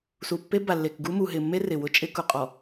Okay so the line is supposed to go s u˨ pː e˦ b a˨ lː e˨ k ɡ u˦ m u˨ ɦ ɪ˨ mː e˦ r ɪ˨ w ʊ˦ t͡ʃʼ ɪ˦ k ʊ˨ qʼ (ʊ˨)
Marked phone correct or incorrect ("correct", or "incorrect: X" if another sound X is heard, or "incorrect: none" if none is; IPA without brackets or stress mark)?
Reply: incorrect: ɔ˨